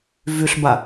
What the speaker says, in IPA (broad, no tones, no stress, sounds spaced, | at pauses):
v y ɬ b a